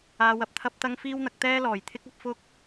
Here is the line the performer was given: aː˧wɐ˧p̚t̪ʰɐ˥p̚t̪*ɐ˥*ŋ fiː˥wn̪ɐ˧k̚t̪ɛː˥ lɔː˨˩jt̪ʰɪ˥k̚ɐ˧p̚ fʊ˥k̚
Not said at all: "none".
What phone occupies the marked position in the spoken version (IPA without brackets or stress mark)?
ɐ˥